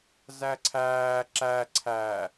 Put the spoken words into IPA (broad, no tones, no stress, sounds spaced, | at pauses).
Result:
z æ ǀʰ æː ǁ æ ǀʰ æ